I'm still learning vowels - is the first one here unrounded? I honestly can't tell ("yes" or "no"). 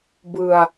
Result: yes